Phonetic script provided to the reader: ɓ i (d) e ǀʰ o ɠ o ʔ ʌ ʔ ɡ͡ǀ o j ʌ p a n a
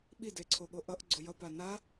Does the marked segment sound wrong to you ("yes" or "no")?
no